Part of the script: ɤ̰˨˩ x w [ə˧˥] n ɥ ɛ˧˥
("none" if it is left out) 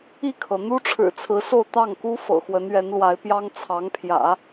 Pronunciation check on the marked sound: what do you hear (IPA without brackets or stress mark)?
ə˧˥